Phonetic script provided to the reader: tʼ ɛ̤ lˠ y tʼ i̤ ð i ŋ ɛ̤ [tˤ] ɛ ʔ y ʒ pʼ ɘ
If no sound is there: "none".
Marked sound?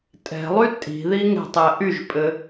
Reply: tˤ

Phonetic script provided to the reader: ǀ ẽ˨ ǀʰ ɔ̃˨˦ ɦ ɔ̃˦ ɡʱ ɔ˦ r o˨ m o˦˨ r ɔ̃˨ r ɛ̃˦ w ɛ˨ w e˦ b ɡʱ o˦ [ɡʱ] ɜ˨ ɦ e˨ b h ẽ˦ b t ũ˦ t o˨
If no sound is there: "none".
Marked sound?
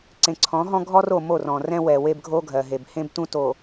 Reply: ɡʱ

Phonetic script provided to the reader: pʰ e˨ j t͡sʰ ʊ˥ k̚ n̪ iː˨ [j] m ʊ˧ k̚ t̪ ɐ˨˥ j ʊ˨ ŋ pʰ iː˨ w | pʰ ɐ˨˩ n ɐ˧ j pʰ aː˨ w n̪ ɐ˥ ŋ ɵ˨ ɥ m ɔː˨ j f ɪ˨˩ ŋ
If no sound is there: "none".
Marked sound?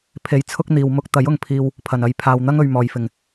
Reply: w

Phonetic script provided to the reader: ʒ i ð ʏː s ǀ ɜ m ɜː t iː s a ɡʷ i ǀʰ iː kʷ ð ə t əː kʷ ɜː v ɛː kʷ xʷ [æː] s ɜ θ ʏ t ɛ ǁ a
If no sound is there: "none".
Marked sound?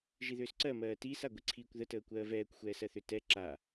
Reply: ɛː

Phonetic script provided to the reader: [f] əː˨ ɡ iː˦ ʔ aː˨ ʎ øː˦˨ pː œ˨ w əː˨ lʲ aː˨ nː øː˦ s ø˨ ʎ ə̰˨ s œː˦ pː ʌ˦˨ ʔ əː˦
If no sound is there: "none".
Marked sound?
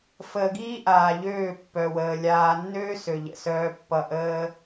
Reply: f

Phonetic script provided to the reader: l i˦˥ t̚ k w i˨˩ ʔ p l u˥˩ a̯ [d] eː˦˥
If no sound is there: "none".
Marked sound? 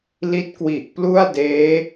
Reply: d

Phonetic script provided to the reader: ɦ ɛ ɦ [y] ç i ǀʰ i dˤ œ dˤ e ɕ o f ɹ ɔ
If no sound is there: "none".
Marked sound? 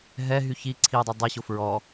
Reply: y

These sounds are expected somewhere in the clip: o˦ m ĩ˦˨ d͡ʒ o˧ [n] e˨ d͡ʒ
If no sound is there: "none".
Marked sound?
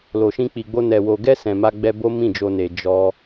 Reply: n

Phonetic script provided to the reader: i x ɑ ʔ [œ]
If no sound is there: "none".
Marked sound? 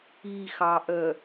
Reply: œ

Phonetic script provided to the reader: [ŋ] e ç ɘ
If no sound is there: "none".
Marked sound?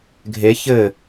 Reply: ɡʱ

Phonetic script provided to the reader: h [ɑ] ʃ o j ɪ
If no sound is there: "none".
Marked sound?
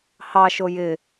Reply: ɑ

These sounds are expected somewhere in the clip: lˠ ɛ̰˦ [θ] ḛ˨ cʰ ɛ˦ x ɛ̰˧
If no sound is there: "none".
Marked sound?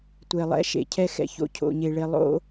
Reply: ʃ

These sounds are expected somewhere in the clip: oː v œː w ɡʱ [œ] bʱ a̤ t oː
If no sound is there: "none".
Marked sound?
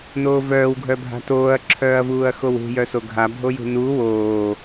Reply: œ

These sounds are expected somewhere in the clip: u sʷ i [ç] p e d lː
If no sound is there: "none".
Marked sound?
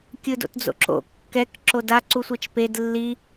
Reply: t͡ʃ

